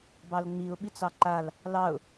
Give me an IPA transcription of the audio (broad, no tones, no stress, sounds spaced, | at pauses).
b ɑ l ŋ͡m i ʊ̯ ɓ i t͡s ɑ ǃ a l | l ɑ ʊ̯